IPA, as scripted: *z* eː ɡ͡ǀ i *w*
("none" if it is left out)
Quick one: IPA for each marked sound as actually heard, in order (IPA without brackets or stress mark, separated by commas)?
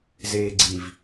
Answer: z, v